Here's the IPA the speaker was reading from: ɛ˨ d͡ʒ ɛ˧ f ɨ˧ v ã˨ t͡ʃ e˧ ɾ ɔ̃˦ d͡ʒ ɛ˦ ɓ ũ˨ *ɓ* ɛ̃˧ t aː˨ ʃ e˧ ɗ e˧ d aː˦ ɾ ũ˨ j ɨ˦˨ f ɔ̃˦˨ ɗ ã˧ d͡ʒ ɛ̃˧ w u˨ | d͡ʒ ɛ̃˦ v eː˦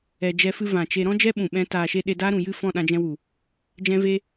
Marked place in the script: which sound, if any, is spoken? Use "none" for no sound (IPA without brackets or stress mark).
ɓ